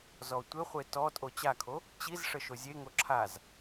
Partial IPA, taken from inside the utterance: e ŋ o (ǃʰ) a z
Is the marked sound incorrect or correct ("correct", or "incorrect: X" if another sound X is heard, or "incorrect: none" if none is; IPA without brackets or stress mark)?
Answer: incorrect: ǁʰ